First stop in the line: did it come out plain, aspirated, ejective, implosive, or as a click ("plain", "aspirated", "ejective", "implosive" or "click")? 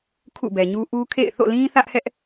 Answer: aspirated